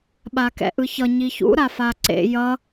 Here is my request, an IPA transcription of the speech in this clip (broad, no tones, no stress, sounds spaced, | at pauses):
ɓ a k ɛ̰ ʔ ɯ ç ʌ ɲ i ç ṵ ɾ a f a ǀ ḛ j ʌ